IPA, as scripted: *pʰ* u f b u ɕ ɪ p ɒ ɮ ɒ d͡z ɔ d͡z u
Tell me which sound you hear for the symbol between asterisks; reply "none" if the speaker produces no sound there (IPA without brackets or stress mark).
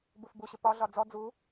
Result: b